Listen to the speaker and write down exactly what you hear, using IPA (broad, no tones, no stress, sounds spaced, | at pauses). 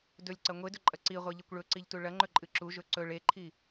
d ɵ lʲ ǀ ɐ ŋʷ e d ɵ ǃʼ ɐ ǀ i ʁʷ e ʎ e kʷ ɭ ɵ ǀ i ʎ t u ɭ ɐ ŋ͡ǃ ɵ ǃʼ ɨ ǁ u ʒ ɵ ǀ ɵ ɭ e ǃʰ i